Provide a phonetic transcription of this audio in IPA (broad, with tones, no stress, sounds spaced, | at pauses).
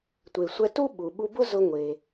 tʷ e˩ sʷ ɛ˧ t u˥ ɓ u˩ ɓ u˧ b ʊ˥ z ʊ˧ ŋʷ e˩